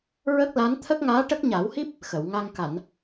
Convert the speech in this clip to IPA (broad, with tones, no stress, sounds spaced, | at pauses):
ɹ ə˦˥ k̚ l a˧˥ n t̪ʰ ə˦˥ k̚ ŋ aː˧˥ ʈ ə˦˥ k̚ ɲ a˨˩˦ w h i˦˥ p̚ | x ə˨˩˨ w ŋ a˧ ŋ k a˨˩˨ n